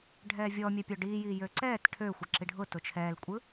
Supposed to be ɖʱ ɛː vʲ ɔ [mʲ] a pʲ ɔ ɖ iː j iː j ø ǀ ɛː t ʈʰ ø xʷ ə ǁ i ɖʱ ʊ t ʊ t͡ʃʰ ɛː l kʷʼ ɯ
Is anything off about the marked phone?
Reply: no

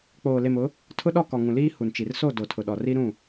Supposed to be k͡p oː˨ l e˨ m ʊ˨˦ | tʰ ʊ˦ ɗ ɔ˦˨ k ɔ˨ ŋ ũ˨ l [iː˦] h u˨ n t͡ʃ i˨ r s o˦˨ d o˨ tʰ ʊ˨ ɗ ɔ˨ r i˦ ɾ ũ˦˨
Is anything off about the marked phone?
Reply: no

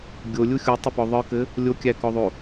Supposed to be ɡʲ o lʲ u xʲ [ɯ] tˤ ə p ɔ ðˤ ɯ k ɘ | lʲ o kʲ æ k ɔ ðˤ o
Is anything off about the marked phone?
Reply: yes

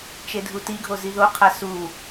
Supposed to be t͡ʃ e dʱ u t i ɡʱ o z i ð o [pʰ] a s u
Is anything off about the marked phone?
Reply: yes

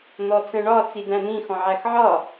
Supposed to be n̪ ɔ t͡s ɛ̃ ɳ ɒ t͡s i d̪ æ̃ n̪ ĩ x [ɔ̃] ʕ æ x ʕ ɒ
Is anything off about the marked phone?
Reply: no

